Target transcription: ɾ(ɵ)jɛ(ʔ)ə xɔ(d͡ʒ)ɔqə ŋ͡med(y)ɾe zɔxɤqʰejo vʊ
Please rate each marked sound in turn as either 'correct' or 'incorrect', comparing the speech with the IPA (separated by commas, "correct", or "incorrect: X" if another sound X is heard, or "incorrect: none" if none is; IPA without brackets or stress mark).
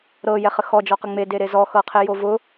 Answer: incorrect: ɤ, incorrect: χ, correct, incorrect: e